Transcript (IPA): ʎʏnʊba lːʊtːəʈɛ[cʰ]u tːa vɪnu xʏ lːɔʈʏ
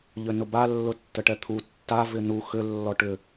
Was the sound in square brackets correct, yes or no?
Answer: no